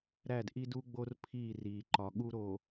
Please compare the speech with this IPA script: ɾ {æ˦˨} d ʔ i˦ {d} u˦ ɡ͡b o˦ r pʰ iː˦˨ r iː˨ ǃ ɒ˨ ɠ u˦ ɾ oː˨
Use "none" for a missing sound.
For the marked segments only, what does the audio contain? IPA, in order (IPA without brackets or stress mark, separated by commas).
æ˦˨, d